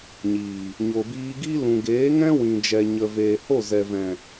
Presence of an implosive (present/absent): absent